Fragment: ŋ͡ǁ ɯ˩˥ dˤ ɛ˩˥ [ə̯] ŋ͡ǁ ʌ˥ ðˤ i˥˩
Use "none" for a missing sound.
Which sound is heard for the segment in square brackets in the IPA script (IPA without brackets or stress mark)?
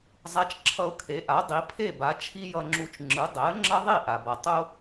ə̯